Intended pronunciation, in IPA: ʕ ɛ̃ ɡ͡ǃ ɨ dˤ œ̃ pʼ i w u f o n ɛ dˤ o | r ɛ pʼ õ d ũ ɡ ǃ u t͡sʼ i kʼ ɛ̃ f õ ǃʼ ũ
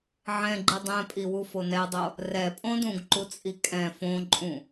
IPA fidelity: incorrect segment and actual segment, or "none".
œ̃ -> ɛ̃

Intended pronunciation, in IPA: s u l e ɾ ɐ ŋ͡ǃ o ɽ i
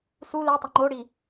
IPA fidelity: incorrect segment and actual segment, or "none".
ɾ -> tˤ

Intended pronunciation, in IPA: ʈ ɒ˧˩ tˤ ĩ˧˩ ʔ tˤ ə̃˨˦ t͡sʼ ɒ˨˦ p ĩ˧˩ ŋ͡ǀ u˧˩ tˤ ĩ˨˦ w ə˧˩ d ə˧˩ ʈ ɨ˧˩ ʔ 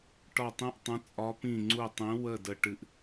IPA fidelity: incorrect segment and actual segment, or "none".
none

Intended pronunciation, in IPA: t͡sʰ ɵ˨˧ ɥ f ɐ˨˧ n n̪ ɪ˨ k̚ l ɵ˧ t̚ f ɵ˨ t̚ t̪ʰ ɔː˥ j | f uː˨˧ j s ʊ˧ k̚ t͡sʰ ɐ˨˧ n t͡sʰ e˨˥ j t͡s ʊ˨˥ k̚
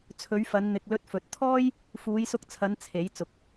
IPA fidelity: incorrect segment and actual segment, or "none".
none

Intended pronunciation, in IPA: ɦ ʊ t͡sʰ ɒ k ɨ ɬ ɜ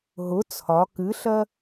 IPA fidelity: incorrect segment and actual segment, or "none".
none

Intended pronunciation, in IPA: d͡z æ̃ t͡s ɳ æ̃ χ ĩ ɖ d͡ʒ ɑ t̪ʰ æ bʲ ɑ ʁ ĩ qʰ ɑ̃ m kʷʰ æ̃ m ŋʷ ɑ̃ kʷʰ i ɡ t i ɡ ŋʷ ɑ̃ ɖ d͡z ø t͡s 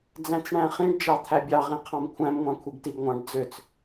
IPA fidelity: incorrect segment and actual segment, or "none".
none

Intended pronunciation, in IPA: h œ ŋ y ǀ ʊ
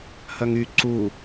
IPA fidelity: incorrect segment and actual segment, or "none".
ʊ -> u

